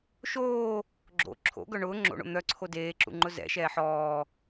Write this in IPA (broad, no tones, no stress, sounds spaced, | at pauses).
ʃ oː | ɡ͡ǁ o̰ ǁʰ o̰ ɡ œ ɳ ʊː ŋ͡ǁ o̰ ɳ o̰ n̪ œ ǀʰ o d eː ǁ ṵ ŋ͡ǃ ʊ z ɛ̰ ʃ ɛː ħ ɔː